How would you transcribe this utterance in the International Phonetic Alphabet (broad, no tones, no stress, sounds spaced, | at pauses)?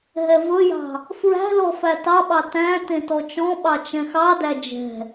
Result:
ɦ ɛ v ɵ j ɑ̤ | f ɹ æ̤ l ɔ f æ t ɑ ɓ ɑ t æ̃ t ẽ t ɔ t͡ʃ ɔ̃ ɓ ɑ t͡ʃ ɛ̃ x ɑ d æ d͡ʒ ɛ̤